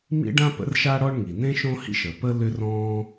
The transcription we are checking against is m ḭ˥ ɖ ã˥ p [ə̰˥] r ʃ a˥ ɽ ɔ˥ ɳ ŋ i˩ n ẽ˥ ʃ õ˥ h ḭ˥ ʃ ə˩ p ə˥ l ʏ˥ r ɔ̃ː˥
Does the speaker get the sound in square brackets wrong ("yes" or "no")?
no